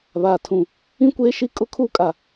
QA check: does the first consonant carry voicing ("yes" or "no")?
yes